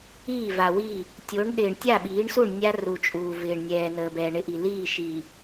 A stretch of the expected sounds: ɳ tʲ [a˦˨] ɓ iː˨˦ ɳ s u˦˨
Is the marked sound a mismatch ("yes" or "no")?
no